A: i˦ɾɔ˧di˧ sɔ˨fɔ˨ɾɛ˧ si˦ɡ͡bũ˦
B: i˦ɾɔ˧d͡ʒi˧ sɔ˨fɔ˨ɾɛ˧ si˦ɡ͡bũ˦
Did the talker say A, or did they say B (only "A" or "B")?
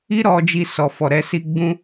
B